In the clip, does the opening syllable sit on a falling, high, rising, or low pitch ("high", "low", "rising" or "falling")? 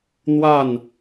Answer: falling